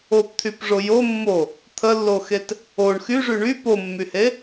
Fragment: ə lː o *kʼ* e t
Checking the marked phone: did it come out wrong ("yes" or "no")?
yes